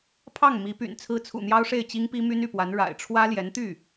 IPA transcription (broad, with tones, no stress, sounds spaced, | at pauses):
pʰ ɑ˥˩ ŋ m i˧˥ p y̰˨˩ n t͡sʰ ɹ̩˥ t͡sʰ ṵ˨˩ n̪ j ɑ˥ ʊ̯ ʂ e˥˩ ɪ̯ t͡ɕ i˥ ŋ p i˥ m y˥ n y˥˩ p w a˧˥ n ɻ a̰˨˩ ɪ̯ ʈ͡ʂʰ w ä˥ l j ɛ˧˥ n t̪ y˥˩